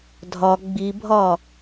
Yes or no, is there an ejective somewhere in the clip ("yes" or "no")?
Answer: no